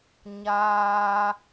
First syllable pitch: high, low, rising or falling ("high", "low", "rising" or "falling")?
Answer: high